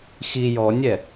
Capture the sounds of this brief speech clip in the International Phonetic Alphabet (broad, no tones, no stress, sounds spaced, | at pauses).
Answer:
x i j ɔ nʲ ɛ